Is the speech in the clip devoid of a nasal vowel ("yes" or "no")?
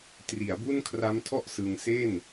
yes